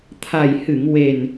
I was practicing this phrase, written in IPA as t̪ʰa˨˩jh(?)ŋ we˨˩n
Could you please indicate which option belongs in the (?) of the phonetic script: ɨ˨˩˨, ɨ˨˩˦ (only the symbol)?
ɨ˨˩˨